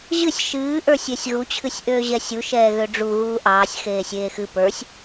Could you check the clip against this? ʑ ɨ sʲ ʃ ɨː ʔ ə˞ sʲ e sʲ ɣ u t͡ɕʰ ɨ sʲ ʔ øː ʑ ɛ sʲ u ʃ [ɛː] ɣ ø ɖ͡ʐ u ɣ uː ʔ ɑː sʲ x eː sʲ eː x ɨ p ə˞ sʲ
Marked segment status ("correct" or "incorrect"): correct